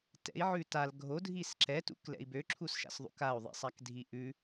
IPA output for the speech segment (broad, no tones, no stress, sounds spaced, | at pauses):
t ɛ̰ i̯ ʕ ʉ t a l ɡʱ o dʱ i s ǁ ɛ t ṵ k l ɛ̰ i̯ b ø ǁʰ u s ʃ a̰ s ðˤ ṵ k a u̯ ðˤ ḭ sˤ a k dʱ i ʔ ʉ